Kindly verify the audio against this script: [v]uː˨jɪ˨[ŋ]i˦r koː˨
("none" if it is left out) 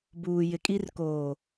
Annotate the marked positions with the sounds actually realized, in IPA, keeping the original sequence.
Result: b, kʼ

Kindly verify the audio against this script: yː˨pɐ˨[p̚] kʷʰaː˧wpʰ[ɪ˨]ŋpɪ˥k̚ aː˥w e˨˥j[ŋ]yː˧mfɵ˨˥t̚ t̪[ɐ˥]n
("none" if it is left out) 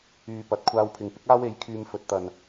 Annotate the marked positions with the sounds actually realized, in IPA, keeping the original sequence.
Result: t̚, ɪ˨, kʰ, ɐ˨

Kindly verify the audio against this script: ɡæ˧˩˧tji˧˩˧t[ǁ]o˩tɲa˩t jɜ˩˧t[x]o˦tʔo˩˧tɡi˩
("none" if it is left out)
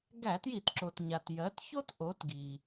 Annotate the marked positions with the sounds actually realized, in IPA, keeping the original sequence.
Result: ǁ, ç

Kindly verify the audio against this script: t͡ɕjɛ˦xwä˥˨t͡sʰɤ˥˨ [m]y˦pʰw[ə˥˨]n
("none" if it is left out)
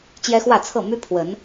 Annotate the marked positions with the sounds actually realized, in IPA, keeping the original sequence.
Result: m, ə˨˦

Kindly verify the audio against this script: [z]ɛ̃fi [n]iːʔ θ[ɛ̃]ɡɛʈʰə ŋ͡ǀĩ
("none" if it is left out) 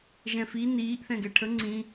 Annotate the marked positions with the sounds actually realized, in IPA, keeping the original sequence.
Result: ʒ, n, ɛ̃

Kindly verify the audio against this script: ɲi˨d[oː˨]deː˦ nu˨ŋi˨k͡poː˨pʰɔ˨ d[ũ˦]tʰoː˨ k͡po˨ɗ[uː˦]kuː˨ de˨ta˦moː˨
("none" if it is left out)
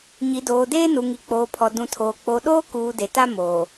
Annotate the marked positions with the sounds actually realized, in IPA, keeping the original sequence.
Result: oː˨, ũ˨, oː˦

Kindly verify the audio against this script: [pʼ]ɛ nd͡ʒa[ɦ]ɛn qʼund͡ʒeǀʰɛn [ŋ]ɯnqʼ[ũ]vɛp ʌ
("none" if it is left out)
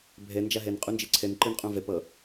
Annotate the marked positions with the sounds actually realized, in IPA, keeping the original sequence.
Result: bʱ, ɦ, ǃ, ũ

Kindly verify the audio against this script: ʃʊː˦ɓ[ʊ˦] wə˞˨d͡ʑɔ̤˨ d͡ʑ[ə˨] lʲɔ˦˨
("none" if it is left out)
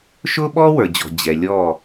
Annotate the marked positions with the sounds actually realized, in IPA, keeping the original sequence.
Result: ɔ˦, ɛ˨

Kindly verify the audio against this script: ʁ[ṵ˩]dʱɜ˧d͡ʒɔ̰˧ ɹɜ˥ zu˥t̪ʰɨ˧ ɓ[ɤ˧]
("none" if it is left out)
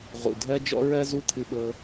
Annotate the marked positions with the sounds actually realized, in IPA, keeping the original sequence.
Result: ṵ˩, ɤ˧

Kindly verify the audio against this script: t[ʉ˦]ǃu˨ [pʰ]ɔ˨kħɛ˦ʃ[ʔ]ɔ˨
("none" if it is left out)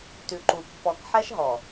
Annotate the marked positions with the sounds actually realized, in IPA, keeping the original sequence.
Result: ʉ˨, pː, ɦ

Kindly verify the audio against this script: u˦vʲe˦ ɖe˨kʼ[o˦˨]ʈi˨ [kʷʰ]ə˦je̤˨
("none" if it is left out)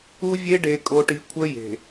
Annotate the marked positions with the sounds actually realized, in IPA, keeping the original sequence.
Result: o˨, kʷʰ

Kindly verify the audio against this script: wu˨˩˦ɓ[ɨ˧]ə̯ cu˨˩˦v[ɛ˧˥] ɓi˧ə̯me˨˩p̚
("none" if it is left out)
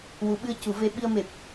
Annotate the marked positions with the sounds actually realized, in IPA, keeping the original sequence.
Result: ɨ˧, e˧˥

